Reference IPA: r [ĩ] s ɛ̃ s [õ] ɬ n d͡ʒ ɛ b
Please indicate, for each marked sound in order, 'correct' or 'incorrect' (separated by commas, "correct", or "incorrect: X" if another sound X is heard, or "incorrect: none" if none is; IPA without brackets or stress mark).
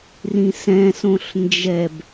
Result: correct, correct